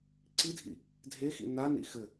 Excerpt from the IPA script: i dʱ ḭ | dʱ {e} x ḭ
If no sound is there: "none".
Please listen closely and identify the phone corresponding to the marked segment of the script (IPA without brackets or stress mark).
e